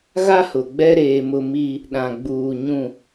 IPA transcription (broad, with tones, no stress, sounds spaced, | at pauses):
ɣ a˦ h ʊ˨ ɡ͡b ɛ˦ ɾ eː˦ m ʊ˦ m i˦ | ɗ ã˨ ɡ͡b uː˨ ɲ ũ˨